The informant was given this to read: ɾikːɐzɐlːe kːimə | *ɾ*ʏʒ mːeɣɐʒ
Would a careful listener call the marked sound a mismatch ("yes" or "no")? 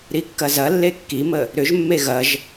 no